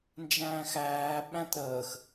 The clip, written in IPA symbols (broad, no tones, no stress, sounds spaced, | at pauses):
n d͡ʒ æ̃ː x æː ɓ æ̃ t ɾ əː x